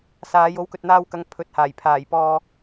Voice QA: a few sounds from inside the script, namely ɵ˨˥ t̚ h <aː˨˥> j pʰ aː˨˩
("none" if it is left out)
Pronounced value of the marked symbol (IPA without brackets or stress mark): aː˨˩